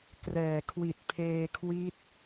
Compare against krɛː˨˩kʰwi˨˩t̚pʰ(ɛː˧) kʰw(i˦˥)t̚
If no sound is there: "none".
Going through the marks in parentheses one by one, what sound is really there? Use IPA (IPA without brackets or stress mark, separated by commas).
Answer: eː˧, i˦˥